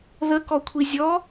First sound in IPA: ð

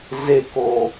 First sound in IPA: z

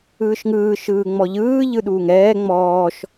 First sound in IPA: ɯː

